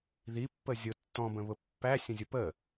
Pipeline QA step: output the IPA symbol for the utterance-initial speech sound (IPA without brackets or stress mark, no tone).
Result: ð